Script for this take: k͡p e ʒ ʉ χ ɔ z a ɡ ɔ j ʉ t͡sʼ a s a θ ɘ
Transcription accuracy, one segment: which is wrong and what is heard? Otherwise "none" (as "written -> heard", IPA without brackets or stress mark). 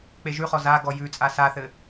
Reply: none